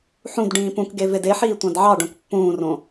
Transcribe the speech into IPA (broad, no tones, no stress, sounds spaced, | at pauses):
ħ ũ d ɖ ĩː p ũ k ɡ e v e d e ħ iː tʷ ɑ̃ d ʕ ɑ ɖ õ k pː ũː r õ